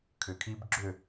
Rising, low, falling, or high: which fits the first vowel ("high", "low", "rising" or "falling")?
low